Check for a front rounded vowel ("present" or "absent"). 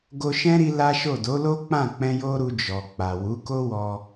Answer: absent